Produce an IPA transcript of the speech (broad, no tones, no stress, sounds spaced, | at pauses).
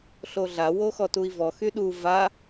ɬ o ɮ a w o x ɔ t u i̯ v ɔ x y ɗ u v a